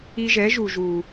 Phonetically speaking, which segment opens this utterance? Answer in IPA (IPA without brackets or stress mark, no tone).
i